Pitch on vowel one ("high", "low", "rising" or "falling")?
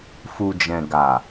low